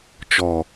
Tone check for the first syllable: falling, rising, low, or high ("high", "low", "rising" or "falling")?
low